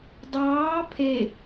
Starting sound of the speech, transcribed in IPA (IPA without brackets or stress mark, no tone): dˤ